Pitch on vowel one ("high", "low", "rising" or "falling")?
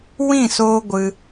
falling